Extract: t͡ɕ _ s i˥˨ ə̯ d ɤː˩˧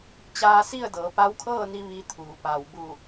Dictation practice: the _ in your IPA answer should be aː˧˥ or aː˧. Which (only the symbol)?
aː˧